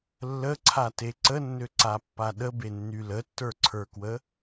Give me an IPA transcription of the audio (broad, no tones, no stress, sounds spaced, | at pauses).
lː ə ǀʰ a t e ǀ ə nː ø ǀ a pː a ɗ ə b e nː y l ə tː ə˞ ǀʰ ə˞ k w ə